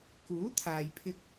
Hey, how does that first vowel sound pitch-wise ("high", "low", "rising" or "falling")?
rising